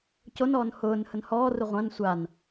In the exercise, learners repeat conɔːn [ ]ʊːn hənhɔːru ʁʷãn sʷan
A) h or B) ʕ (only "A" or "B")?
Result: A